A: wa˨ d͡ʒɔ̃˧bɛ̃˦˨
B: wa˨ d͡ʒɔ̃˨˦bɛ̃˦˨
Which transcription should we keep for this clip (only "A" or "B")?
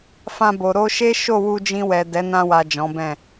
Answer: B